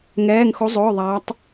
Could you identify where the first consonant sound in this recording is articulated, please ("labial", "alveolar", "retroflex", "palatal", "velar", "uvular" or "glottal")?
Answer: velar